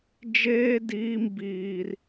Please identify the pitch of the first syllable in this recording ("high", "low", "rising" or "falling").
high